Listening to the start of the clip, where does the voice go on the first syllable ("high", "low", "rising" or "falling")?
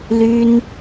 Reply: high